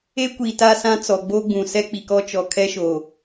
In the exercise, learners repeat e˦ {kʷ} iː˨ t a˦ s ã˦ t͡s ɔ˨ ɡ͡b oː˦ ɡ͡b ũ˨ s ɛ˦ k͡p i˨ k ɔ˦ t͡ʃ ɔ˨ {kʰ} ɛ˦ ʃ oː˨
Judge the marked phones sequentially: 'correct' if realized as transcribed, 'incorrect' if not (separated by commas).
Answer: correct, correct